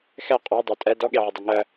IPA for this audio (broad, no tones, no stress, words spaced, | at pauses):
xɛ qʼɔ dˤotʼɛ dɔɠeʕʊdˤo ŋɜ